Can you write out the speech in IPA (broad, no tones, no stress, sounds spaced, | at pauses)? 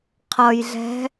qʰ ʌ j ɮ ɛ̤